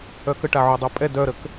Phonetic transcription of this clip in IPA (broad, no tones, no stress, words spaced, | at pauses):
œkəʈa ʕodˤopʼɛ dœɾək